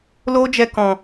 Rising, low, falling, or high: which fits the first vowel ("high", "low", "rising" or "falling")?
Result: high